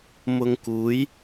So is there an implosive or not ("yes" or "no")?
no